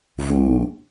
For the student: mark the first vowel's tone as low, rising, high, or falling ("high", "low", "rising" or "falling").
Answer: low